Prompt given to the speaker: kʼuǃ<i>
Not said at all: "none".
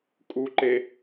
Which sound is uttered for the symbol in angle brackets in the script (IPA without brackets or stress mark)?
e